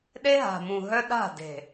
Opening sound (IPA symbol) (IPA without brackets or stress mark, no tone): ɗ